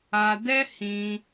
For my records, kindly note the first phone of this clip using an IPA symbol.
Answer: a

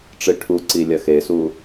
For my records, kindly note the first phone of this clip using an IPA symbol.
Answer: ʈ͡ʂ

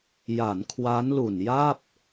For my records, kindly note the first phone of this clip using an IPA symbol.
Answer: j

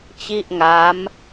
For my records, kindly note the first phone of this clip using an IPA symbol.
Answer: t͡ɕ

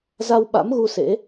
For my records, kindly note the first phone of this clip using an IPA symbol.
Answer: z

